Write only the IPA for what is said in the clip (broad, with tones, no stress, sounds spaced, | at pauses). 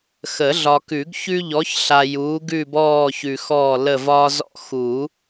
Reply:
x ə˨˩˦ ɮ ɒ˨ k ʉ˨˩˦ ɡ ç ʉ˦ ʎ ɔ˨˥ ç ɬ a˨ j uː˨˥ ɡ ʉ˦˨ b ɔː˦˨ ç ʉ˨ x ɔː˦˨ l ə˦˨ v ɒː˦ z ɔ̰˦ x u˨˩˦